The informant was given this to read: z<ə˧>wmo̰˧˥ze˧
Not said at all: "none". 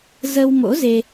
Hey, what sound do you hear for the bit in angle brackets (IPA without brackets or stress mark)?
ə˧